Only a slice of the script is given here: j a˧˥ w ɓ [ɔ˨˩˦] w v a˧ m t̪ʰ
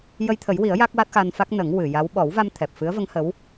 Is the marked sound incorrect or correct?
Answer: correct